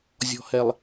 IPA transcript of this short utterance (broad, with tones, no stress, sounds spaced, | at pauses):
zʲ ɔ̤˨ h ɛ˨ lˠ